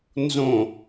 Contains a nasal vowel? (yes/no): yes